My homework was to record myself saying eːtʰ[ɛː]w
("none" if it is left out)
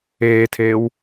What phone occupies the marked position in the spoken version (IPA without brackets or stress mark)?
eː